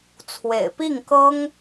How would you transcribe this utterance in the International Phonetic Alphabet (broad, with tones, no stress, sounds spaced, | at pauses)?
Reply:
t͡sʰ w ḛ˨˩ ɪ̯ p i˥˩ ŋ k ɤ˥ ŋ